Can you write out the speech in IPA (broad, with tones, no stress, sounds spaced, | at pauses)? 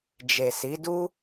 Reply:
d͡ʒ e˨ s i˨˦ d u˦